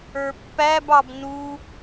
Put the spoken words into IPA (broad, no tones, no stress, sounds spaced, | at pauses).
ə˞ pː æ b ɑ b n u